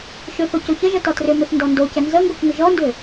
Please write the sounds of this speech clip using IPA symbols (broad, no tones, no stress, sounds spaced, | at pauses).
ʃ ʏ θ o c o ç ə ʒ ə t ɔ t r ʏ m ʏ θ n d ɔ n d o c ə n z ə ŋ ɡ o k ŋ ʏ ʒ ɔ n d ʏ